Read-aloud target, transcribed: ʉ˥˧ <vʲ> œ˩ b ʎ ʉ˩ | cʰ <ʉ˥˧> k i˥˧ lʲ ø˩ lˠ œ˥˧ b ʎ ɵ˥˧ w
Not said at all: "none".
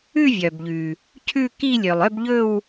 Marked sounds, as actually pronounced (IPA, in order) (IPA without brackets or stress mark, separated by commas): vʲ, ʉ˥˧